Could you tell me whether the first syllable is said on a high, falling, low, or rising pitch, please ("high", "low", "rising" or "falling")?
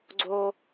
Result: high